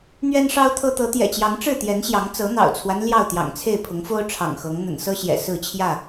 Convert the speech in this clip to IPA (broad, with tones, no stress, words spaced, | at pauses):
n̪ɥɛ˦nʂɑ˦ʊ̯t̪ʰɤ˦ t̪ɤ˨˦t̪jɛ̰˨˩t͡ɕjɑ˨˦ŋ ʈ͡ʂɻ̩˥˨t̪jɛ˨˦nɕjɑ˨˦ŋt͡sɤ˨˦ n̪ɑ̰˨˩ʊ̯t͡sʰwa˦n ljɑ˥˨ʊ̯t̪jɑ̰˨˩ŋt͡sʰe˥˨ɪ̯ pʰʊ˨˦ŋfo˦ʊ̯ ʈ͡ʂʰɑ̰˨˩ŋxɤ˨˦ŋ n̪ə̰˨˩nsɤ˦ɕjɛ̰˨˩ sɹ̩˥˨t͡ɕʰjä˥˨